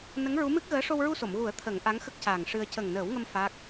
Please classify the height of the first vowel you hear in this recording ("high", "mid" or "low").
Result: mid